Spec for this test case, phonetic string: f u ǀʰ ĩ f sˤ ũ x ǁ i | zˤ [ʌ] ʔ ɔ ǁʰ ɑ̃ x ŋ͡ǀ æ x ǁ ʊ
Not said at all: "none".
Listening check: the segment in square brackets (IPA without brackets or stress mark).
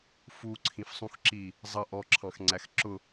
ʌ